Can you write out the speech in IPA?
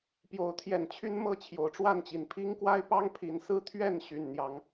p j o˨˦ ʊ̯ t̪ʰ j ɛ˨˩ n t͡ɕʰ y˦ n m ɤ˥˨ t͡ɕʰ j o˨˦ ʊ̯ ʈ͡ʂ w a˥˨ n t͡ɕ i˨˩ n pʰ i˦ ŋ k w a˦ ɪ̯ p ɑ˦ ŋ pʰ i˨˦ n s ɹ̩˦ t̪ʰ ɥ ɛ˥˨ n ɕ y˨˩ n n̪ j ɑ˨˦ ŋ

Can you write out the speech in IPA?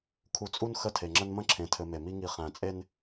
kʰ u˨ t͡sʼ u˦ n x ə˦˨ tʰ e˨ ŋ͡ǁ ə˦ n m ə̃˦ ǁʰ ẽ˨ tʰ ɘ˨ m e˨ m i˦ ŋ i˨ χ æ̃˨ t͡sʼ e˦ n

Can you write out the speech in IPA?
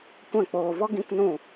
kʷ ɛ̃˦˨ k͡p oː˧ v ɔ˦ ɡ ĩ˦ k n ũ˦˨

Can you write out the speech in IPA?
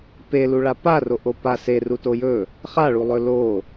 p e l u ɭ a p a r o ʔ o p a s e r u t o j ɵ | χ a ɭ u lˠ ɵ l o

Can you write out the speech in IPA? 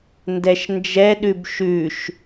n d ɛ ʃ n d͡ʒ ɛ ɗ ʉ b ʃ ʉ ʃ

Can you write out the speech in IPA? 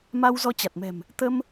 m a˧ w z ɔ˧ t͡ɕ a˨˩ t̚ m ɛ̤˨˩ m | t̪ ə˧ m

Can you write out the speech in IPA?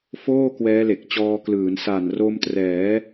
f oː˥˩ k w ɛː˦˥ l e˨˩ k̚ t͡ɕ ɔː˧ k l ɯː˩˦ n s a˨˩ n r o˧ m t r ɛː˩˦

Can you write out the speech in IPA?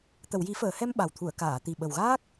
t̪ ə˨˩˨ w j i˨˩˦ f əː˨˩˨ h ɛ˧ m ɓ a˨˩ w t̪ʰ u˨˩˨ ə̯ k aː˨˩˨ t̪ i˨˩ ɓ ə˨˩ w ɣ aː˦˥ k̚

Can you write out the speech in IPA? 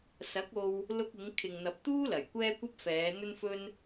s ɐ˨˥ k̚ o˧ w | l ʊ˧ k̚ ɪ˨˧ ŋ kʰ ɪ˨ ŋ n̪ ɐ˨ p̚ t̪ uː˥ l ɐ˨˩ j kʷ ɛː˥ kʷ ɐ˥ p̚ f ɛː˨˧ n̪ ɵ˥ n f ɵ˥ n

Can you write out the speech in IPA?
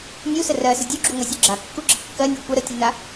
nʲ u s ə r ɜ s ə dʲ u ɡ͡ǁ u ŋʷ ɜ sʲ u ɡ͡ǁ a kː u ɡ͡ǁ ə kː ɜ nʲ ɜ kʷ ə ɾ ə tʲ u n a

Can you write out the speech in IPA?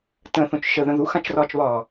t ə̃ θ õ t͡ʃ ʃ ə ð ə̃ ð u x ã t͡ʃ r ɒː t͡ʃ β ɒː

